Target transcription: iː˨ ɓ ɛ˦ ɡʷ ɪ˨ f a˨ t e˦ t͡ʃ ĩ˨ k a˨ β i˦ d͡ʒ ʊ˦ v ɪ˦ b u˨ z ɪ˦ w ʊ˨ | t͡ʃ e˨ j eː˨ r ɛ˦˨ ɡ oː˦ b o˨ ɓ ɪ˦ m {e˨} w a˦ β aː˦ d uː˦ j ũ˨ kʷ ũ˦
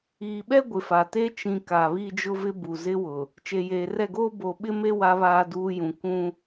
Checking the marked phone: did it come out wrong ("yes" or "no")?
yes